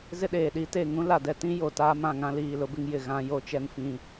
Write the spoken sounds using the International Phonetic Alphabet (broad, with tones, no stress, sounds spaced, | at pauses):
z ɪ˦ ɗ eː˨ ɗ i˦ t e˦˨ ŋ ũ˦ l a˨ d ɛ˨ t ĩ˦ j o˨ t aː˦ m ã˨ ŋ ã˦ l iː˦˨ l ʊ˦ b ɪ˦ ŋ j ɪ˨ ɣ ã˦ j o˦ t͡ʃ ɛ˦ n f ĩ˦